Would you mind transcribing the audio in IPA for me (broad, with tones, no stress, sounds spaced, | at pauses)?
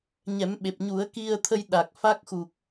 ɲ ɛ˨˩˦ m ɓ e˨˩ p̚ ɲ u˨˩˦ ə̯ k i˧ ə̯ t̪ʰ ə˧ j ɗ a˨˩ k̚ f a˦˥ k̚ x u˨˩ k̚